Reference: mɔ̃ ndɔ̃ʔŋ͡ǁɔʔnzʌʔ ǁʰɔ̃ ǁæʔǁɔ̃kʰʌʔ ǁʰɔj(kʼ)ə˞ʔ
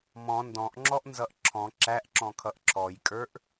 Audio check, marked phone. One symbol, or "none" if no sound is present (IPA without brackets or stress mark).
kʼ